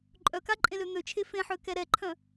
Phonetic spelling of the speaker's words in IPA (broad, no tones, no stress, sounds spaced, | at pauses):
ǃʼ œ k a ǃʼ ẽ l ø n̪ ø t͡ʃʰ e f ẽ ħ ø k ɛ ɾ ɛ ǃʰ œ̃